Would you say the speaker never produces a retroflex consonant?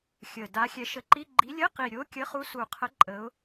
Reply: yes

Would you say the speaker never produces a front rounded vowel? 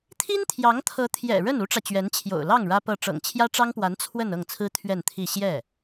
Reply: yes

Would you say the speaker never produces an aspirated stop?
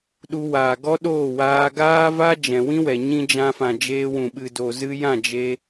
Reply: yes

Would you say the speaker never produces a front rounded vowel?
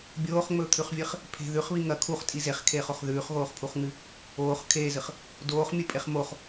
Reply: yes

